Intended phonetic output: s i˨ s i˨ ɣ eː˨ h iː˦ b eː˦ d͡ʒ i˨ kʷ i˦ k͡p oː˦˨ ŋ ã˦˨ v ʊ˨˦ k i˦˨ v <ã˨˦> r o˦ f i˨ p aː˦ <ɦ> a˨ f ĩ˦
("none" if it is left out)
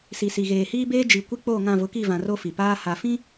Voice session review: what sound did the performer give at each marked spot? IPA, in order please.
ã˨, h

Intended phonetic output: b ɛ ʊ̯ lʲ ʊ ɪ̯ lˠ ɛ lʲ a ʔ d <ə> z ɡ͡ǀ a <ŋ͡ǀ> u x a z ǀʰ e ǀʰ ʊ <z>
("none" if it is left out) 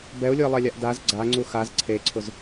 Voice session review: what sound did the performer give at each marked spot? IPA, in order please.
a, ŋ͡ǀ, z

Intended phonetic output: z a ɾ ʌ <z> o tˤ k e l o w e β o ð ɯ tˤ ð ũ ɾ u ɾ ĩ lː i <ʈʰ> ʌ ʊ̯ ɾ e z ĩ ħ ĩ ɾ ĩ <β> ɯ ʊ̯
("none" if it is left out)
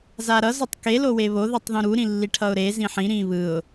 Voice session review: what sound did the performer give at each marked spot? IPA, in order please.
z, ʈʰ, β

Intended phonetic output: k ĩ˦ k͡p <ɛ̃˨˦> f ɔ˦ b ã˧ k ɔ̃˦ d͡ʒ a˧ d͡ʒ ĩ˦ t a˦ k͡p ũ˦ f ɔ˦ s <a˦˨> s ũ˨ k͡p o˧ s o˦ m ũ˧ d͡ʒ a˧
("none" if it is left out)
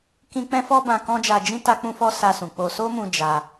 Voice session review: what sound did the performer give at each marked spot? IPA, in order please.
ɛ̃˦, a˧

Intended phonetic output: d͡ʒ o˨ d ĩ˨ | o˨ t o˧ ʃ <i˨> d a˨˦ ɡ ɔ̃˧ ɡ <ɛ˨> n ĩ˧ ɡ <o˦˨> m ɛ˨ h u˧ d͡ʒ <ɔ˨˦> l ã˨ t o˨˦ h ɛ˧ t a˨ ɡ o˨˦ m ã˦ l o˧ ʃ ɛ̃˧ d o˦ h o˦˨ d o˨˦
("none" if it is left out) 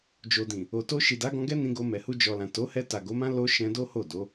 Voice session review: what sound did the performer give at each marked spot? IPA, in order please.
i˨, ɛ˦, o˧, ɔ˨

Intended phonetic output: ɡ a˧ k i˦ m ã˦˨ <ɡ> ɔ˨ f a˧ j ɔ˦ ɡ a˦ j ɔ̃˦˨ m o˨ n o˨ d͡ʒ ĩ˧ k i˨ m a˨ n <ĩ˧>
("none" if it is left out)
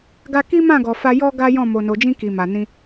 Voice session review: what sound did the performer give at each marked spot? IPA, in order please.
ɡ, ĩ˧

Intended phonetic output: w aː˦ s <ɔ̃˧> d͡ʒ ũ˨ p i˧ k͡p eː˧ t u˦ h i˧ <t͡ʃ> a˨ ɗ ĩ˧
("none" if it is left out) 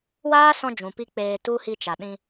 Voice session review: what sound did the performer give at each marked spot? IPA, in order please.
ɔ̃˧, t͡ʃ

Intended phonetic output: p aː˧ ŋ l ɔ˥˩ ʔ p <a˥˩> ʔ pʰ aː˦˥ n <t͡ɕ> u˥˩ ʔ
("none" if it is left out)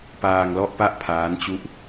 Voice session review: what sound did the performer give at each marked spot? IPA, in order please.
a˥˩, t͡ɕ

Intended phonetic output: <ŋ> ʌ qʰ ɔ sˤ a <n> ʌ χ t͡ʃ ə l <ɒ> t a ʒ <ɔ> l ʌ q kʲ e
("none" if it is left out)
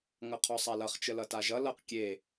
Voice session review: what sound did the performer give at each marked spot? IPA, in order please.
ŋ, l, ʌ, ʌ

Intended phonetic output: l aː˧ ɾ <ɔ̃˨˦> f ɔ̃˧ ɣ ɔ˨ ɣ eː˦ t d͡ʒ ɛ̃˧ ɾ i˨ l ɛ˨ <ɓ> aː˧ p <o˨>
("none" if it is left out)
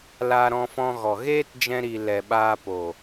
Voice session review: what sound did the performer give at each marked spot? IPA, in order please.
ɔ̃˧, ɓ, o˨

